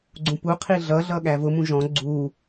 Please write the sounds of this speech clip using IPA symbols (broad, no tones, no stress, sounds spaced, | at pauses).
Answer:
ɡ͡ǀ ũ p u qʰ i ɮ ʌ ɮ ʌ ɠ æ v ʊ m ũ ʒ ɔ̃ ɡ͡ǀ u